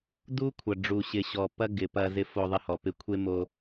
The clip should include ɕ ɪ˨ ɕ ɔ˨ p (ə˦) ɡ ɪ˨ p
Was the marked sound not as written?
yes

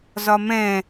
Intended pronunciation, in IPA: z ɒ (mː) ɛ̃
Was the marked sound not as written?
yes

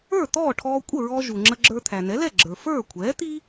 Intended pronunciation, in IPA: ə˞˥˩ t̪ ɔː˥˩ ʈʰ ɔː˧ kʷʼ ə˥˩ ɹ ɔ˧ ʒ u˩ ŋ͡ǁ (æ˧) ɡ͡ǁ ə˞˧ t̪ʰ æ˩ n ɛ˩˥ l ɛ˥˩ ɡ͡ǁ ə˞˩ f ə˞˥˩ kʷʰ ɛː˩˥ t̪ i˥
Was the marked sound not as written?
yes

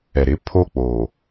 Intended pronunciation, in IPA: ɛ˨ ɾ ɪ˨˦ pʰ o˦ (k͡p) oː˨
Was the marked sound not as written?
no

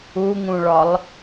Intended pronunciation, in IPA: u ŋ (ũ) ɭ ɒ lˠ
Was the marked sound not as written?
no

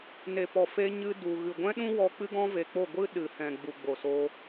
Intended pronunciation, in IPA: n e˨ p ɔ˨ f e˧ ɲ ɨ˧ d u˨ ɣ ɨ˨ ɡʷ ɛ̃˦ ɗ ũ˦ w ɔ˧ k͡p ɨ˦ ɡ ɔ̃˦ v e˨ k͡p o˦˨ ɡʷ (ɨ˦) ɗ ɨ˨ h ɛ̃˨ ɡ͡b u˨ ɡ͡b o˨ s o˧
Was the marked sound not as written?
no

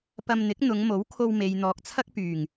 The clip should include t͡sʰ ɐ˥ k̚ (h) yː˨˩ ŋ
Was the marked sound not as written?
yes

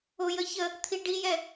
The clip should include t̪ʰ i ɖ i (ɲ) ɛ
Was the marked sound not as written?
yes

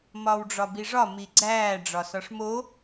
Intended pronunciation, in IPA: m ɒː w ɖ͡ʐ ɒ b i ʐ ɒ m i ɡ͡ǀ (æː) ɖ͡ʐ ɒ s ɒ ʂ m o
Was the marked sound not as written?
no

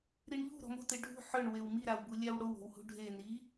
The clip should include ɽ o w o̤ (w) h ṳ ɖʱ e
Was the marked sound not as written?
no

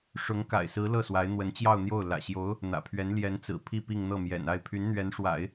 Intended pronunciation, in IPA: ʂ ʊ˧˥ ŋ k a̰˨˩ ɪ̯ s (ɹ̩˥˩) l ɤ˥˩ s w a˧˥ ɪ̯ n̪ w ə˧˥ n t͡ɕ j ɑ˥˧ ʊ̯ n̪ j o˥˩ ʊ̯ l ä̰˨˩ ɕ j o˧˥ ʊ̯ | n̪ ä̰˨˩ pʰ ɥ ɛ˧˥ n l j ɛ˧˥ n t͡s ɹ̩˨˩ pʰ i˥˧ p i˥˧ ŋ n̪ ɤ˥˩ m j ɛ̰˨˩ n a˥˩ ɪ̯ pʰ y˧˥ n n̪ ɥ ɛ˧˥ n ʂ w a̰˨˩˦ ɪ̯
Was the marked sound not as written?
yes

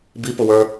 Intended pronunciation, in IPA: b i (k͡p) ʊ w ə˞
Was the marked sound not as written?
yes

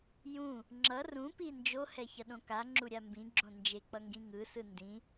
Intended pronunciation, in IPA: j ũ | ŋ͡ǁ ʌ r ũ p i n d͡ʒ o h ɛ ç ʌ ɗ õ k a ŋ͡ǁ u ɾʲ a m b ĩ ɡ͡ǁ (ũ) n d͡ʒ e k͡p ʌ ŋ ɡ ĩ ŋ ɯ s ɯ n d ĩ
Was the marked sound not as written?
yes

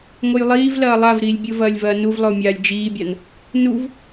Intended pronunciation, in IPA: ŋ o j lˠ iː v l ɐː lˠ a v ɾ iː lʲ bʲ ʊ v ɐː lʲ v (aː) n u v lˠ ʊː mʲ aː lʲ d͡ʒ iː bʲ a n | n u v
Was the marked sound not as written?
yes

